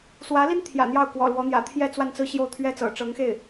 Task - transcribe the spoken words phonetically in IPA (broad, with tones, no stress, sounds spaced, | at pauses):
s w ä˧˥ l i˥ n t̪ʰ j ä̰˨˩ n̪ j ɑ˥˩ ʊ̯ k w ɔ̰˨˩ l w ɔ˧˥ n̪ j ä̰˨˩ t̪ʰ j ɛ˥˧ t͡s w a˥˧ n t͡s ɹ̩˥˧ ɕ j o˥˩ ʊ̯ t̪ʰ ɥ ɛ˥ t͡s ɤ̰˨˩ ʈ͡ʂ ɤ˧˥ ŋ x e˥˩ ɪ̯